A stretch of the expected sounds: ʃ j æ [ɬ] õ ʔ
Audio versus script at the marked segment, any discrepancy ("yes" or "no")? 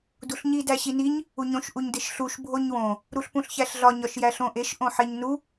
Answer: no